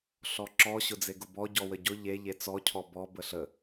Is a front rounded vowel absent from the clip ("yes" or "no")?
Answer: yes